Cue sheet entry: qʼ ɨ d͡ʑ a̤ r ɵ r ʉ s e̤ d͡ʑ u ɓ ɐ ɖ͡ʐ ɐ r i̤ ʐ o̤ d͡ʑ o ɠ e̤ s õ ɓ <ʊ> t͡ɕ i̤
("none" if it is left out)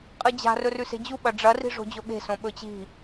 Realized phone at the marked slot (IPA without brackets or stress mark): ɵ